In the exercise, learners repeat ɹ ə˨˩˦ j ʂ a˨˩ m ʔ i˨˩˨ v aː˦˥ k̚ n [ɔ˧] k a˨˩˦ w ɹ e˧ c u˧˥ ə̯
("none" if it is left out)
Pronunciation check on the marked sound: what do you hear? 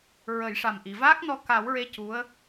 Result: ɔ˧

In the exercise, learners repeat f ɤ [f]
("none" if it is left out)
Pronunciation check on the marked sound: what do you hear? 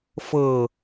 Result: none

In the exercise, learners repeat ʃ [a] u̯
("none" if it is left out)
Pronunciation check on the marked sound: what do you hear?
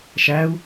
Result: æ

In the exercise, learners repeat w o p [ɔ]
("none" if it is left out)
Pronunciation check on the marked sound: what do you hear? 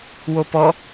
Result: ɔ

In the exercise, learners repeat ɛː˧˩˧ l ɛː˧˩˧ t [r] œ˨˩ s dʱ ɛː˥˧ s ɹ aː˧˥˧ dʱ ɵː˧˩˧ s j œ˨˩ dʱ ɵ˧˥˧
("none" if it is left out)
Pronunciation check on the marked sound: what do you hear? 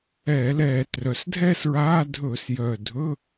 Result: r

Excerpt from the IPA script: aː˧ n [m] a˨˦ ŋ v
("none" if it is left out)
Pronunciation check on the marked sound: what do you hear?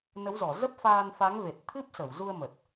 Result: f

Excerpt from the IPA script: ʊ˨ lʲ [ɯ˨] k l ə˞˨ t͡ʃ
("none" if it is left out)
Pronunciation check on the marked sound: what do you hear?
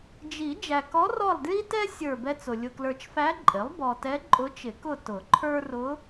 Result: ʊ˨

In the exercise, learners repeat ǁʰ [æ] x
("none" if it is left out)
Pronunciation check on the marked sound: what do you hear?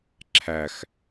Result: æ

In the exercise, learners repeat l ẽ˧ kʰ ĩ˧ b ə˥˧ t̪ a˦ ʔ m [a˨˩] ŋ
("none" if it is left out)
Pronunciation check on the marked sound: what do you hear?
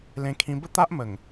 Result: ə˨˩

